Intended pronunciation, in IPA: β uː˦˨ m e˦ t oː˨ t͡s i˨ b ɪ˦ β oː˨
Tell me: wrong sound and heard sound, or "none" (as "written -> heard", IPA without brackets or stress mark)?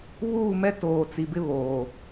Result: e˦ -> ɛ˦